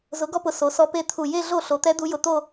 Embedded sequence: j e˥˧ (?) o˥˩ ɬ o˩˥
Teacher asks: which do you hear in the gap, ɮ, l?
ɮ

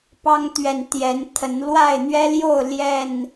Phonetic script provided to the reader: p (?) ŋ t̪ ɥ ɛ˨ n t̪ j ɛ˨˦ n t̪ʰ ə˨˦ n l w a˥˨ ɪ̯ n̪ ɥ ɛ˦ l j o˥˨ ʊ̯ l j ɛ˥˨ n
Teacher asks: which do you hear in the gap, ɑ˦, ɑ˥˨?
ɑ˦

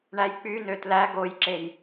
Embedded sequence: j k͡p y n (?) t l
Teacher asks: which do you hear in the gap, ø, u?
ø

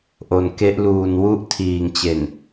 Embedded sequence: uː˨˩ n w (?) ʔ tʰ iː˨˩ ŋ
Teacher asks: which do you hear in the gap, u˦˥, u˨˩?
u˦˥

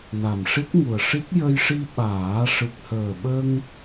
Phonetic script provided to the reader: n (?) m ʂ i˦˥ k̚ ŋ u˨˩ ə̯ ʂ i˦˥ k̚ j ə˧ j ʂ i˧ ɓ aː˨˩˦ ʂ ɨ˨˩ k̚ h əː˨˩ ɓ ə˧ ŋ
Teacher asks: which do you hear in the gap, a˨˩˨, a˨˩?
a˨˩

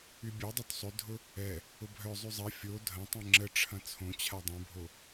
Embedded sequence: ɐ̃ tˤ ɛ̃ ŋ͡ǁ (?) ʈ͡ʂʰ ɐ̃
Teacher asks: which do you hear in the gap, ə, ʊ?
ə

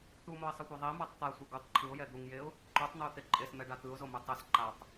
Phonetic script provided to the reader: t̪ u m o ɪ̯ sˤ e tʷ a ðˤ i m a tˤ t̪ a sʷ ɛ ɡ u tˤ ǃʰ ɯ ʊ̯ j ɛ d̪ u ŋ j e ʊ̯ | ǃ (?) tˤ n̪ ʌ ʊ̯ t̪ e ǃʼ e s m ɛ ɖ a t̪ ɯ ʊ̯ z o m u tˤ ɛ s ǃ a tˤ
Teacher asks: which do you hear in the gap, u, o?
u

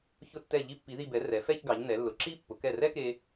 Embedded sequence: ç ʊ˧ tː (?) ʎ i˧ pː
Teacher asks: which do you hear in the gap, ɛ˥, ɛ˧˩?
ɛ˧˩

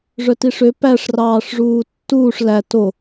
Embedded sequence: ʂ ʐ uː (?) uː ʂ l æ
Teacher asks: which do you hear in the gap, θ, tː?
tː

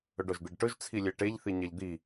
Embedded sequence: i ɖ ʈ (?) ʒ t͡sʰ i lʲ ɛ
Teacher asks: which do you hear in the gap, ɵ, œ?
ɵ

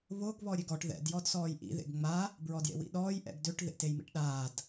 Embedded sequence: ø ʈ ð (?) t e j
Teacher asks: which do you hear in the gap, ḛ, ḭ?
ḛ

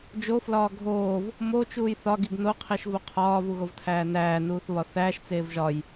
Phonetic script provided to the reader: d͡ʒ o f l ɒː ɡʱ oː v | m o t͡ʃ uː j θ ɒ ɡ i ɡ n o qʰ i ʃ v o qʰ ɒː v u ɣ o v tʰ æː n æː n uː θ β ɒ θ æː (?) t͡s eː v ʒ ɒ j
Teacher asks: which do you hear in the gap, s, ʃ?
ʃ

